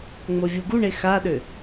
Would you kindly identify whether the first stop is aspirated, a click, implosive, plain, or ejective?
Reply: plain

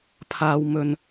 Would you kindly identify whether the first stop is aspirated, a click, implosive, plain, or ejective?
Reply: aspirated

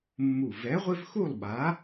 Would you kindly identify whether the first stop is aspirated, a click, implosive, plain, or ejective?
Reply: implosive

